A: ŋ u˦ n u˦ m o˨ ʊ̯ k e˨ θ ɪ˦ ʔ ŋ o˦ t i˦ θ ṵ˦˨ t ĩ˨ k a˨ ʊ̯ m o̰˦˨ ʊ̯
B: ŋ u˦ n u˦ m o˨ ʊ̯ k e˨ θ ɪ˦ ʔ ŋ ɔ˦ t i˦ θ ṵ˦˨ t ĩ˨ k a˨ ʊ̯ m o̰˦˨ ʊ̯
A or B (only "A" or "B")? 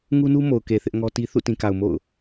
B